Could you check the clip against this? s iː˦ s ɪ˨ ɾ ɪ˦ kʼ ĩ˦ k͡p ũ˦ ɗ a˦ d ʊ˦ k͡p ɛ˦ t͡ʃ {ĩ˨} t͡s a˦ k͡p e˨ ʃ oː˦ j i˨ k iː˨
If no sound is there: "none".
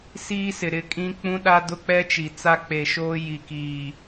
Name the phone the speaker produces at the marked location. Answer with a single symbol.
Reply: i˨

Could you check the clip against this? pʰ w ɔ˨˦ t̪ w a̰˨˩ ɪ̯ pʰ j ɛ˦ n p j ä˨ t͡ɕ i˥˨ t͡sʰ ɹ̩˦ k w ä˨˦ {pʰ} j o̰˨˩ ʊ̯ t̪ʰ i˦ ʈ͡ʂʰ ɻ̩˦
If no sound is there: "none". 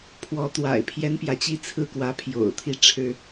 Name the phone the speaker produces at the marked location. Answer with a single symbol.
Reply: pʰ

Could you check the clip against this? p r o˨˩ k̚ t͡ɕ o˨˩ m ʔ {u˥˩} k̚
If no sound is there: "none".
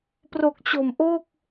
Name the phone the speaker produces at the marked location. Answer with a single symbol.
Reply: o˥˩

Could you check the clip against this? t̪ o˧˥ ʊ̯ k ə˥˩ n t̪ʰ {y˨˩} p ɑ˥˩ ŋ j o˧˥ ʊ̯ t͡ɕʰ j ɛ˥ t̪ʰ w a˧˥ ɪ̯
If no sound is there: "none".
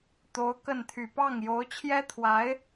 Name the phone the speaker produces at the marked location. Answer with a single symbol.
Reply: y˨˩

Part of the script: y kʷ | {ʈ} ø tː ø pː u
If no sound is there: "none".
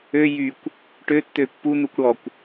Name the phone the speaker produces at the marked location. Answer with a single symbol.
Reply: ʈ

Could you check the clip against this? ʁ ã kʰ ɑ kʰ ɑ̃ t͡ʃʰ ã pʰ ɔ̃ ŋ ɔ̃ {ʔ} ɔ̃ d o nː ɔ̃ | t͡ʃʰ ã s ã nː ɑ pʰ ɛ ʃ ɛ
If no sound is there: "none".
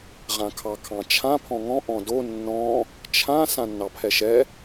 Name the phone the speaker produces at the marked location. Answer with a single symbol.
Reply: ʔ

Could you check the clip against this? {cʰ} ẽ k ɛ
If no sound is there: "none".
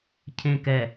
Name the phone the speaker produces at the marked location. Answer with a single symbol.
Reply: cʰ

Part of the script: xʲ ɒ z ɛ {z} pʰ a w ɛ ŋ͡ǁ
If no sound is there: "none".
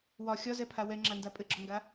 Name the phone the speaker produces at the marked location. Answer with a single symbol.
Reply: none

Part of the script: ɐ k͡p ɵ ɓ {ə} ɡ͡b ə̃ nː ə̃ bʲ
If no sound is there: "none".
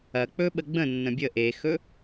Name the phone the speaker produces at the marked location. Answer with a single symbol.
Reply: ə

